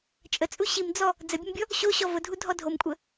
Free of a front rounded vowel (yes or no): yes